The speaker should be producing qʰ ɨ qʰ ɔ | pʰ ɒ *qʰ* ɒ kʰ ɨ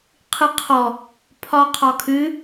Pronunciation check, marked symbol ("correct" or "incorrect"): correct